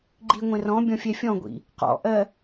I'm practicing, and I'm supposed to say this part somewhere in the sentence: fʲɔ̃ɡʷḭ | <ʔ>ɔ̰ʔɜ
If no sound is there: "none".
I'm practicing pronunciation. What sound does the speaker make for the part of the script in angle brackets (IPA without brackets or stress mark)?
q